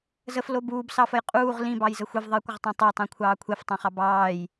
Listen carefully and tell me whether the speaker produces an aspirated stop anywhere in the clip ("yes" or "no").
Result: yes